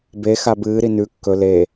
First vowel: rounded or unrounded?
unrounded